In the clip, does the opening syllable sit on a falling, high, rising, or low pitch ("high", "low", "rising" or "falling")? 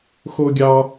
high